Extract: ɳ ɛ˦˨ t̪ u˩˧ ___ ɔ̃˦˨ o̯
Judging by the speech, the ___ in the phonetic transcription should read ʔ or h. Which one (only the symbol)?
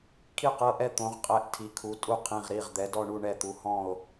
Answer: h